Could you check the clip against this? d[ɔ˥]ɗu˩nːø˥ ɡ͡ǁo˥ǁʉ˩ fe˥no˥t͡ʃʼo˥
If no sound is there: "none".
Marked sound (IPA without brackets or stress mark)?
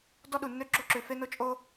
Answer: ɔ˥